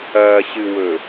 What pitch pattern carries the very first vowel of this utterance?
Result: low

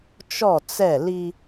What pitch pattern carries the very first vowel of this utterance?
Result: falling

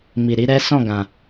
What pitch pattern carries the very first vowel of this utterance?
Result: low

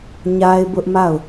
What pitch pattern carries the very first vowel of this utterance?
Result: high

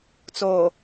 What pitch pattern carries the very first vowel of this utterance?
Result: low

